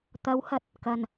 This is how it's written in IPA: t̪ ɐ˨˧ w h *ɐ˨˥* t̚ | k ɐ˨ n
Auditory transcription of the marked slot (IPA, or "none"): ɐ˨˥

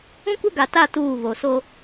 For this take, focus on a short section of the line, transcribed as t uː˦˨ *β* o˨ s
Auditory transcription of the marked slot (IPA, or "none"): β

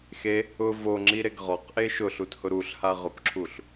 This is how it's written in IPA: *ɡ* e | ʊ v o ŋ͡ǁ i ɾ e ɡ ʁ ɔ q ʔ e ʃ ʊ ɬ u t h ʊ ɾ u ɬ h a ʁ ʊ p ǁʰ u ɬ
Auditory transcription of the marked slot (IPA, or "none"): x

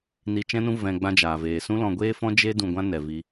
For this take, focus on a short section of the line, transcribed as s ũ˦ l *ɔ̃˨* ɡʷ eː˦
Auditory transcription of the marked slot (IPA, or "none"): ɔ̃˧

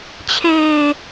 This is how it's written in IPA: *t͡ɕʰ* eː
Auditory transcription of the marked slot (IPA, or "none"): t͡ɕʰ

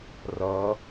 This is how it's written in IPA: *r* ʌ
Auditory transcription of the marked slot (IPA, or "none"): r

